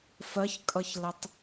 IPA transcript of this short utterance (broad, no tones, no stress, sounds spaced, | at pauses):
f ɜ ç kʼ ʌ ç l ə tˤ